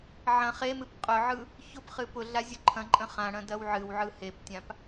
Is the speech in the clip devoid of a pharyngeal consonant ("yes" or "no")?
no